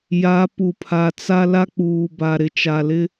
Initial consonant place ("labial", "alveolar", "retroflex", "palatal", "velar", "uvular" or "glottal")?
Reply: palatal